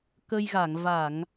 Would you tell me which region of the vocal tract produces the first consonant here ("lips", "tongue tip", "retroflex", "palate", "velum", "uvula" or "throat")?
velum